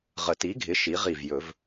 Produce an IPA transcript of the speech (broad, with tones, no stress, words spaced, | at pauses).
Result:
ʁə˨˩˦ti˩˥ɡʱɪ˩˥ ʃi˩˥ʁi˧˩vjɵ˨˩˦v